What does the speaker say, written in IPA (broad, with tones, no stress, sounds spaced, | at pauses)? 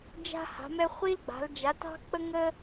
d͡ʒ a̤˦ h a̤˩˧ m ɛ˦ χʷ i˦ l ɡ͡b a̤˩˧ l d͡ʒ a˩˧ t ɑ̤˦ k͡p ə˦ ŋ ə˦